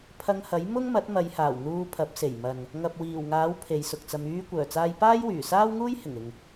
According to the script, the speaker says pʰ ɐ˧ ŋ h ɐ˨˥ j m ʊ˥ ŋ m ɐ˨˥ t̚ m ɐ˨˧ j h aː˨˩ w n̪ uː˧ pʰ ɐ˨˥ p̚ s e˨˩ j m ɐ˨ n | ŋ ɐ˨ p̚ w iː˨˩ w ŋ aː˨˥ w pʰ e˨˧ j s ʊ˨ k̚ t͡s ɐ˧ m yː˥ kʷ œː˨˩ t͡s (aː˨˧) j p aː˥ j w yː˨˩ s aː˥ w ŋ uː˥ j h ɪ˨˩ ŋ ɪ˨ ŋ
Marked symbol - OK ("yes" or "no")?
no